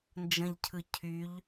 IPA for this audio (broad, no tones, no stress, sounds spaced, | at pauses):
n d͡ʒ ə̃ ʎ cʰ ɯ cʰ y ʎ